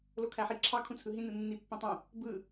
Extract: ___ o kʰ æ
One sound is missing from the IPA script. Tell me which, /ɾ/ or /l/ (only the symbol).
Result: l